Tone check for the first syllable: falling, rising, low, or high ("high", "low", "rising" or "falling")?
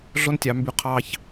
high